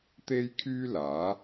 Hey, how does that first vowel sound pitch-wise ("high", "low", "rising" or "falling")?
high